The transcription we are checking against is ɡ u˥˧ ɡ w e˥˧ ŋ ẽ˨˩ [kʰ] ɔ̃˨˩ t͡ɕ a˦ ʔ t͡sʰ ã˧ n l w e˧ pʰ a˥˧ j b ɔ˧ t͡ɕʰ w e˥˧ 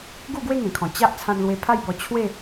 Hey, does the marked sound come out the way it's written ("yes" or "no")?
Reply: yes